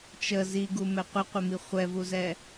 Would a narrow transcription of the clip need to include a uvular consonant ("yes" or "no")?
yes